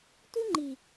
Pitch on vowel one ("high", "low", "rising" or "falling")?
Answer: high